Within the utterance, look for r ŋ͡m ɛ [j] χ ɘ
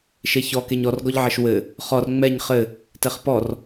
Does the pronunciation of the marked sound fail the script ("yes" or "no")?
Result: yes